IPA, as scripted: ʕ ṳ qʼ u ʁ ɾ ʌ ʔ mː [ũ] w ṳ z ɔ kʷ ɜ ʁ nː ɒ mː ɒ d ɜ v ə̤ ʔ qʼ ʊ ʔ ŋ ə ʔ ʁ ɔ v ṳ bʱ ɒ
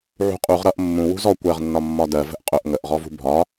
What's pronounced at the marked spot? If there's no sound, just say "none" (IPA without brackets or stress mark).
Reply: ũ